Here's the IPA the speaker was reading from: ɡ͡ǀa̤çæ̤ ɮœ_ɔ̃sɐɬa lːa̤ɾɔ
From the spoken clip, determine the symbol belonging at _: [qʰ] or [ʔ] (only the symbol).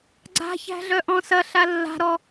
ʔ